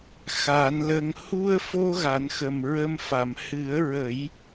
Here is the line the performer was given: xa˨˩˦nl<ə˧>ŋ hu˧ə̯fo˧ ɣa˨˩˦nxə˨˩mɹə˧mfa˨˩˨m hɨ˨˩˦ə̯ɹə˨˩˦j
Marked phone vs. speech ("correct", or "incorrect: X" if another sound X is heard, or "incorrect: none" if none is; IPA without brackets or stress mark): correct